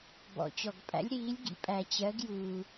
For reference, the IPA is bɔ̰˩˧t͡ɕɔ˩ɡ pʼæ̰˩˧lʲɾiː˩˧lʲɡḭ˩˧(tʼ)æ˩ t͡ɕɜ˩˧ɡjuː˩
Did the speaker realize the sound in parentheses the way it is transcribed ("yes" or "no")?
no